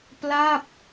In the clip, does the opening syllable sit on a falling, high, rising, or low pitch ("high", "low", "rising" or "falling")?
falling